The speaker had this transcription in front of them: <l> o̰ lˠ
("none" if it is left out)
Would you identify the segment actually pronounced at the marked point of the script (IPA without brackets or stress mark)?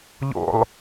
ʎ